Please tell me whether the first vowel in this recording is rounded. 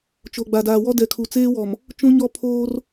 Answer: yes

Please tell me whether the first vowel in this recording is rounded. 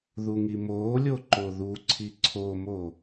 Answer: yes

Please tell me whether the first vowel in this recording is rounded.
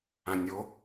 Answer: no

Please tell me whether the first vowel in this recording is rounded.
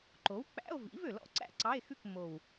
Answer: yes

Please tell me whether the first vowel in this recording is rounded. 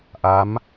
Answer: no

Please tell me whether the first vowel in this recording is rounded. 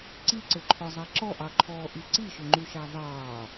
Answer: no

